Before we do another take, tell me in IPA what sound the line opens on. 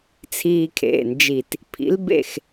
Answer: t͡sʰ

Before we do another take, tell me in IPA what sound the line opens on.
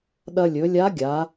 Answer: ɗ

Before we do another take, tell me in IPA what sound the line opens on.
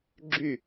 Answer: ɡ͡ǁ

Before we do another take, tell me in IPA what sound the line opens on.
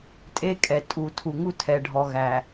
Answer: tʼ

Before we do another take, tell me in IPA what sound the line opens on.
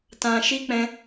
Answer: t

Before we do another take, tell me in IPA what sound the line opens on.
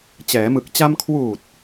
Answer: t͡ɕ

